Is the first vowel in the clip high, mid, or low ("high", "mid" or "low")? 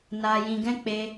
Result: low